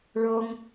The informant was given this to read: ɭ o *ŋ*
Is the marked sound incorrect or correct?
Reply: correct